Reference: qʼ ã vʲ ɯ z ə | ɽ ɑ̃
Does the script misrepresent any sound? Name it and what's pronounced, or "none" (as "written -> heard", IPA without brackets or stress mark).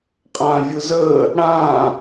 ɑ̃ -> ã